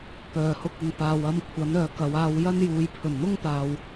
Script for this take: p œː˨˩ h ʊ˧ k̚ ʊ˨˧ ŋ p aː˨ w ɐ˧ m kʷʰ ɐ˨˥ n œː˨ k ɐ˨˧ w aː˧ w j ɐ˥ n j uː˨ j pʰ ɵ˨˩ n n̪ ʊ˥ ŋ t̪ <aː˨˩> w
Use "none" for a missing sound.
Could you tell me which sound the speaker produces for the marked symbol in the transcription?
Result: aː˨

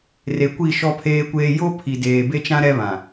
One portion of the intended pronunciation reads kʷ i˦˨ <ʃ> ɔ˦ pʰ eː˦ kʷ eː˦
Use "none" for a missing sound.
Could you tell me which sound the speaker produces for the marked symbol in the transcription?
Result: ʃ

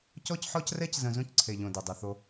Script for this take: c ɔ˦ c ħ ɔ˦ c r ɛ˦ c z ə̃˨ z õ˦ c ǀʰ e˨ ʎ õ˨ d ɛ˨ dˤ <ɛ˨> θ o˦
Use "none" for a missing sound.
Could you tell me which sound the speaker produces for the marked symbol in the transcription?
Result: ɛ˨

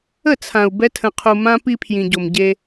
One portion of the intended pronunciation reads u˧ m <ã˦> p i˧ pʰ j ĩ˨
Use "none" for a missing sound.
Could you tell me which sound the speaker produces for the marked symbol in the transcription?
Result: ã˦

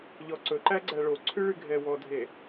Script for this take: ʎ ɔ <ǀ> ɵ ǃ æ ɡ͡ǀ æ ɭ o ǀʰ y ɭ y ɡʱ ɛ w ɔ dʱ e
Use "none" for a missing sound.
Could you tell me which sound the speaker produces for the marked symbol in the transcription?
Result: ǀ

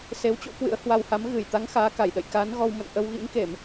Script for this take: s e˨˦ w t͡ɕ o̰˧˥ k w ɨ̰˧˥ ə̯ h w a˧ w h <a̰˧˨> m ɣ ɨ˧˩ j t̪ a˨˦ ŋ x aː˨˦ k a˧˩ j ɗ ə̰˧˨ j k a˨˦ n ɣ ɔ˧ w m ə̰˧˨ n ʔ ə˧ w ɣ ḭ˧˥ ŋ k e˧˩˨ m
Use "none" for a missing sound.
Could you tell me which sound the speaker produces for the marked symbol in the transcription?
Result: a˨˦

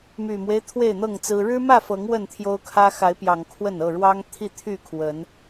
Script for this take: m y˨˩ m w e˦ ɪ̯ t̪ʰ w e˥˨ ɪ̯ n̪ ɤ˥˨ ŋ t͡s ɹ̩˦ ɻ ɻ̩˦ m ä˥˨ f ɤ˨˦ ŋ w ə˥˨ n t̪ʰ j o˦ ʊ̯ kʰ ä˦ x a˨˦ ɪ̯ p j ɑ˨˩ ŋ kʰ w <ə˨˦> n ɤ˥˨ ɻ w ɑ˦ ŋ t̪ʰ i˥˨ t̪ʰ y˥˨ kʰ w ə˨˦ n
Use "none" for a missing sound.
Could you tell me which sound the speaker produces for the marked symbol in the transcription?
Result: ə˥˨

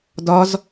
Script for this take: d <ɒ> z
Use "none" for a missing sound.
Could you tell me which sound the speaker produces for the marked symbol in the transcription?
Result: ɒ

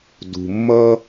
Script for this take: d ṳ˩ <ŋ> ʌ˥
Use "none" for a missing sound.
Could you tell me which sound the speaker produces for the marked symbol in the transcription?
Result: mː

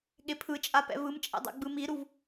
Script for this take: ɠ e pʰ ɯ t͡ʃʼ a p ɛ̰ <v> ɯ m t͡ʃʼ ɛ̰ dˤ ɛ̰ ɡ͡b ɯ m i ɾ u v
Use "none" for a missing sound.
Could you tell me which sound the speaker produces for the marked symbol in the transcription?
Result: v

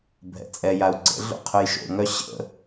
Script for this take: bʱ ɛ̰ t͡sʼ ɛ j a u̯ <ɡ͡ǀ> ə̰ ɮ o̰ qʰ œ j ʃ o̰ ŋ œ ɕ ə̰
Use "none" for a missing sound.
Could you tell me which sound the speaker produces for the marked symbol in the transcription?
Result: ɡ͡ǀ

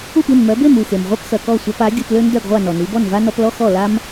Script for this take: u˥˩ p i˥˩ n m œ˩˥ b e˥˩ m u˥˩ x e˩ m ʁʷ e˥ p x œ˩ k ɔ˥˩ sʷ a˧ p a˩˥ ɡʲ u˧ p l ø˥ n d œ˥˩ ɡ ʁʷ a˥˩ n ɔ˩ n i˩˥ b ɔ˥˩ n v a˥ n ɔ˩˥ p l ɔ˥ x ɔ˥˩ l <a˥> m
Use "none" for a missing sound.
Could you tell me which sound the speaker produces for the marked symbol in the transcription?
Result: a˥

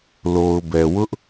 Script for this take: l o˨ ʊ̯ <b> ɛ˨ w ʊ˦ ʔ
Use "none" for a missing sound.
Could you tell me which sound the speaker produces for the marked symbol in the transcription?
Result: b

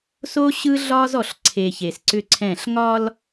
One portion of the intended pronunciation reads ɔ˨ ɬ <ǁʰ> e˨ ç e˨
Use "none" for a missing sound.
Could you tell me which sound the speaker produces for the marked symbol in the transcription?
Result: ǀʰ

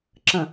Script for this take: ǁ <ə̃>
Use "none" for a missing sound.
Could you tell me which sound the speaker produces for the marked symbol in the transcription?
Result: ə̃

